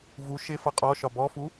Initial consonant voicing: voiced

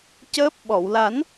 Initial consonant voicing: voiceless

